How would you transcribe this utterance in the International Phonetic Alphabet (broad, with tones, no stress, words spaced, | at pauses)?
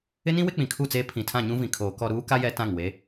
ɪ˦nĩ˦ wɪ˦k͡pĩ˨kʰu˦˨t͡seː˦ pʰĩ˨tʰã˦˨ɲũ˦vĩ˨ kʰoː˨kɔ˦˨ ɾuː˦ka˦ jɛ˦ tã˦˨ŋ we˨˦